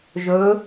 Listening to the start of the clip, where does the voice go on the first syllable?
rising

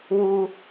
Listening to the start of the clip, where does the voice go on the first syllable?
high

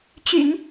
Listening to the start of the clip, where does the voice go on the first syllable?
low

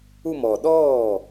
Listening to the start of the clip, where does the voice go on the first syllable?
falling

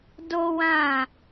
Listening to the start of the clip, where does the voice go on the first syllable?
high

